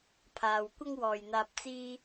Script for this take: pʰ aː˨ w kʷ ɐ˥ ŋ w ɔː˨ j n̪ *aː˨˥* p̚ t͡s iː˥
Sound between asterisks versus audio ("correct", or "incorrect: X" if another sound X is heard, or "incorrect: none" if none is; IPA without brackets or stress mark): incorrect: aː˧